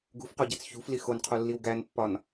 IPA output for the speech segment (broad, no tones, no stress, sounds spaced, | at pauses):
ɡ ṳ f q o ɟ æ t͡s ç ṳ f l i x o n qʰ o lː i w ɡ æ n pː ɒ n